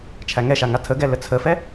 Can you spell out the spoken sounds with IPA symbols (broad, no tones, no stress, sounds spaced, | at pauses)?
t͡ʃʰ æ ŋ ɛ ʃ a ŋ a tʰ ə ɡ ɛ l ə t͡sʰ ə f ɛ